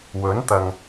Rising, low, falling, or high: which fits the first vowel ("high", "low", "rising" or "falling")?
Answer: rising